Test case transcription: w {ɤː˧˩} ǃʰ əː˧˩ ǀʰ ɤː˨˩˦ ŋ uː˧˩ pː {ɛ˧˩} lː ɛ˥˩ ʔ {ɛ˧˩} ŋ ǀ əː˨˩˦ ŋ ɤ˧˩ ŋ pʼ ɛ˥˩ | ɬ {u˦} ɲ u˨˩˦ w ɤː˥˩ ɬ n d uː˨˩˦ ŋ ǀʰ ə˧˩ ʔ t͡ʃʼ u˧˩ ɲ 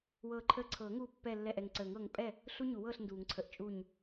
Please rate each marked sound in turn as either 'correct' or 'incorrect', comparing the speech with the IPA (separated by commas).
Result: correct, correct, correct, correct